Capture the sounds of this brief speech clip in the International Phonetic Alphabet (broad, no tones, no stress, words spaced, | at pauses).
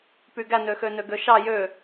pyɡænøxø nøɡøʃɑ jø